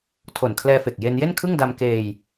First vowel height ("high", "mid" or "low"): mid